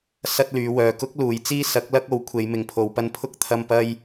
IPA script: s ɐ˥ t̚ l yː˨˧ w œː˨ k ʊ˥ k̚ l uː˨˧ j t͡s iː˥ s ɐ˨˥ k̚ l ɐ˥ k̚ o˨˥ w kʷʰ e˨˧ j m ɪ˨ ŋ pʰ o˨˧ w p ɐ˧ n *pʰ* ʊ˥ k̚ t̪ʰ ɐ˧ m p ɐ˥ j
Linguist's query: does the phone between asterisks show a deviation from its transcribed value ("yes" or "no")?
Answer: no